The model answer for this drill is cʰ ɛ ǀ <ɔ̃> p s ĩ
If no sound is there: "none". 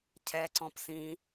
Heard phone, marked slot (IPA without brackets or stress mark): ɔ̃